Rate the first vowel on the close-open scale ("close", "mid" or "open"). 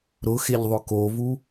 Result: close